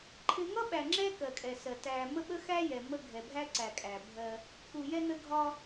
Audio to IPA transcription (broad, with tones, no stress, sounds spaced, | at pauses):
ǃʰ ɪ˦ ŋ ʌ˦ ɓ æ˨ ŋ͡ǁ ɛ˦ k ɜ˨ kʼ ɛ˨ s ɜ˨ t æ˨ m ə˦ ɓ ə˦ x æ˦ j ɛ˨ m ə˦ ɡʱ ɛ˨ bʱ æ˦ ǀ æ˨ kʼ æ˨ bʱ ɜ˦ | k u˨ j ɛ˦ n ə˦ ɡʱ ɒ˦